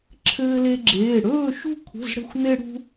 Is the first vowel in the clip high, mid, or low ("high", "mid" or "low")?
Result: mid